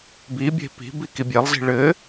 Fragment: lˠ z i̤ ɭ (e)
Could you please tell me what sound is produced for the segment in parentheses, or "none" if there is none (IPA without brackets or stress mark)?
ɘ